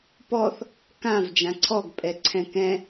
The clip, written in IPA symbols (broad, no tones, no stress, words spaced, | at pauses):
pɔθ | kãv d͡ʒãǀʰɔɡ pʼɛǀʰɛ̃kɛ̃